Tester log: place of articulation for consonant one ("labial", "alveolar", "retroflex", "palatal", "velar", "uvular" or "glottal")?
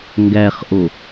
velar